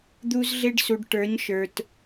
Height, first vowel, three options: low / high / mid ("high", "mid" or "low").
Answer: high